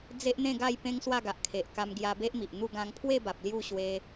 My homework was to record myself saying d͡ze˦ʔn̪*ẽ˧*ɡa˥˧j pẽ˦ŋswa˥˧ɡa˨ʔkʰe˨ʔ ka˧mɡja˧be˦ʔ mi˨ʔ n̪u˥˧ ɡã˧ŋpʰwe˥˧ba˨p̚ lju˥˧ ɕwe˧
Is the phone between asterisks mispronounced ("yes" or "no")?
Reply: yes